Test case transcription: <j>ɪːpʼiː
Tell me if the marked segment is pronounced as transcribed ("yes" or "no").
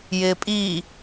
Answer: yes